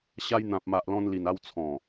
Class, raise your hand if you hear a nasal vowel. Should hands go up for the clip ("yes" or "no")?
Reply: yes